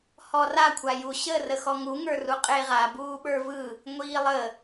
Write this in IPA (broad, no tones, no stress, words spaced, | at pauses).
hɔra kʷʰaju ɕə rəxɔŋu ŋə˞ruqʼeʁa buːɓə˞vɯ | ŋʷiːlˠə